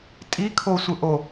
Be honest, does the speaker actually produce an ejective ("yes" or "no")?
yes